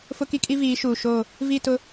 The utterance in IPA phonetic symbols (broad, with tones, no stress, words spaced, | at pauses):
fʊ˦ki˦kʼi˦viː˨˦ ʃuː˨ ʃoː˦˨ | vi˦˨tʊ˦